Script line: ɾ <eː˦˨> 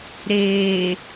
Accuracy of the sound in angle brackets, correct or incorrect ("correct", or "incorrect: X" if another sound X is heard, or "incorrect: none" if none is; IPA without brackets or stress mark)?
incorrect: eː˨